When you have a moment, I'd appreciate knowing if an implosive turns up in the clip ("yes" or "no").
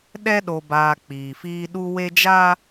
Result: yes